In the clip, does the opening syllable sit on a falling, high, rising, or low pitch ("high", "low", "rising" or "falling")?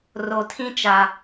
low